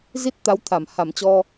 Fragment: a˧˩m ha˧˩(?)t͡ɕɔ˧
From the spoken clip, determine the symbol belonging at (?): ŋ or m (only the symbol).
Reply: m